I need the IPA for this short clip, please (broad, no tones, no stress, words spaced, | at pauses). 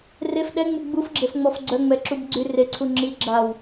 ref ɗɛŋ͡mu ɡ͡bufɡ͡ǁefŋ͡mɔf ɡ͡ǀœŋ͡mɛǁub ɡ͡ǀy reǀʰu ŋ͡ǁi ɡ͡ǁaw